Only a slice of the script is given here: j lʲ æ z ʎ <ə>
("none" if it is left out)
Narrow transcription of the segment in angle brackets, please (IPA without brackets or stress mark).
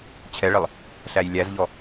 ɔ